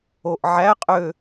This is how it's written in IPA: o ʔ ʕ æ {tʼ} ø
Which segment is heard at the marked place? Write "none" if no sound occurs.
qʼ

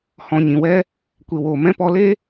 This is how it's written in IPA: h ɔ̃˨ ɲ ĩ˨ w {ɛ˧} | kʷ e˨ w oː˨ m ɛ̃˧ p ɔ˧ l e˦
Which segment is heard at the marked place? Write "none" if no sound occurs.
ɛ˧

